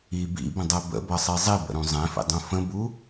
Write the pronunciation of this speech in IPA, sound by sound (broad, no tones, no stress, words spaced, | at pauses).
i bḭbə̃dˤɛ bə̰bʌsˤi zˤibə̰ɾũ zˤɛ̃fḭdˤũ fə̃bu